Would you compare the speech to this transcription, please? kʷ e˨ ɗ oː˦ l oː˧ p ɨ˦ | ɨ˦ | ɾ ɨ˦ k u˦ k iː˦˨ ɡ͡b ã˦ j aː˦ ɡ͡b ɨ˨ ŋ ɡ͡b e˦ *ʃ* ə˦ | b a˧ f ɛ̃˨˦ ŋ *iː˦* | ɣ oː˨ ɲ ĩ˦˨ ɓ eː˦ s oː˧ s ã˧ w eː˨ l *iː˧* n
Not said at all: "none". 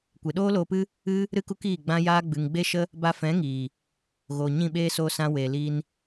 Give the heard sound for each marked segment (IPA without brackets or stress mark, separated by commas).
ʃ, iː˨, iː˧